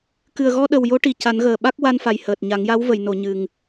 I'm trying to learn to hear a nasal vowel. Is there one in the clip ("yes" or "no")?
no